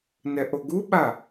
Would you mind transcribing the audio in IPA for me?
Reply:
n ɛ ʔ o ɡ u ɓ a

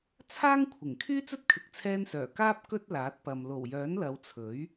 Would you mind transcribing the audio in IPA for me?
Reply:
t͡sʰ aː˥ ŋ kʷʰ ɪ˨˩ ŋ kʰ yː˥ t͡s ɵ˥ t̚ kʰ ɪ˨ k̚ t͡sʰ ɛː˧ n s œː˨˩ k aː˥ p̚ k ɵ˥ t̚ l aː˨˥ t̚ p ɐ˨ m l o˨˩ w j œː˨˥ n l ɐ˨˧ w t͡sʰ ɵ˨˥ ɥ

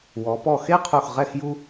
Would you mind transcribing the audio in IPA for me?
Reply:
w ɔ˩˧ p ɔ˧˩ x e˥˧ qʰ u˧˩ x ʁ ɛ˥˧ x j u˥

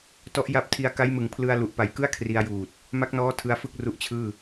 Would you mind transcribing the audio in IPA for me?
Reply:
t ɔ˦˥ ʔ j a˦˥ p̚ tʰ i˧ a̯ k a˦˥ j m ɯ˨˩ ŋ pʰ l ɯ˧ a̯ l u˨˩ ʔ p a˨˩ j k ɯ˥˩ a̯ kʰ r i˧ a̯ j uː˨˩ t̚ | m a˦˥ k̚ n ɔː˦˥ tʰ ɯ˦˥ a̯ f ɯ˥˩ k̚ r u˦˥ ʔ t͡ɕʰ ɯː˥˩

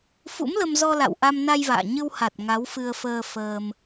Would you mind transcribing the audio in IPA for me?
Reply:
f ṵ˧˥ m l ə˧ m z ɔ˧ l a̰˧˨ w ʔ a˧ m n a˧ j v a̰ː˧˨ ɲ ɨ˧ w h a˨˩ t̚ ŋ a˨˦ w f ɨ˧ ə̯ f əː˧ f əː˧ m

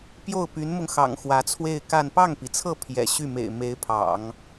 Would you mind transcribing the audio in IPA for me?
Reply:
p j o˥˩ ʊ̯ p y˧˥ n m ʊ˧ ŋ x ɑ̰˨˩ ŋ x w ä˧˥ t͡sʰ w e˥˧ ɪ̯ k a˥˧ n p ɑ˥˩ ŋ p i˩ t͡sʰ ɤ˥˩ pʰ j ɛ̰˨˩ ɕ y˥˩ m ḛ˨˩ ɪ̯ m e˧˥ ɪ̯ pʰ ɑ̰˨˩˦ ŋ

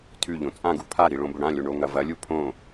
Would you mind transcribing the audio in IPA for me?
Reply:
tʰ ʉ ʎ õ t͡sʼ ã ɡ u pʰ a ɾ i ɭ õ b ɵ ɽ ã lʲ o ɳ o ŋ ɐ v ɐ lʲ u pʰ õ

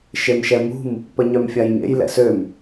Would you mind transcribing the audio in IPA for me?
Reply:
ʃ e m ʃ ɛ m ṳ m | p ə ɲ œ m fʲ a j ɲ ḛ j l ɛ̰ s ø m

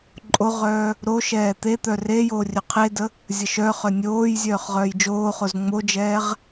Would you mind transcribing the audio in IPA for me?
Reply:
ǃʼ o ʁ œː | ɾ o ʃ ɛː t̪ e t̪ œ r e j oː rʲ œ qʰ e d ə | zʲ ə ʃ œ χ œ nʲ oː j zʲ œː χ ʁ œː j d͡ʒ oː χ o z ŋ͡m o d͡ʒ ɛː ʁ

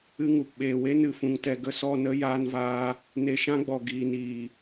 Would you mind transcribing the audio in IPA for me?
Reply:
ɨ˧ ŋ u˨ p ɓ eː˨ w e˦ n ɨ˨ f ũ˨ ŋ t ɛ˨ ɡ ə˧ s ɔ˦˨ n ə˦ j aː˧ n v aː˧ | n e˧ ʃ ã˦ ɡ͡b ɔ˨ ɡ iː˨ n iː˨

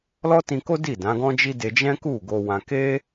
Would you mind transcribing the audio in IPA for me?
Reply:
l ɔ˦ t ĩ˧ k o˦ d i˦˨ d ã˨˦ ɡ ɔ̃˦ d͡ʒ i˦ d e˧ d͡ʒ ɛ̃˦ k u˦˨ ɡ o˧ w ã˧ k e˦

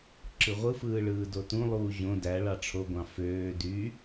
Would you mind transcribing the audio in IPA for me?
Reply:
ǁ ɯ ʁʷ ɯ f ɯː ɭ ɯː d o t ũ lˠ uː ʑ õ d æ ɭ ɑ ʈ͡ʂʰ o ɡʷ ɑ̃ f øː d y

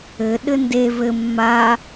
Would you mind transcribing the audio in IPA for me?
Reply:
ɘ ɗ ɘ n d e v ɘ mː a

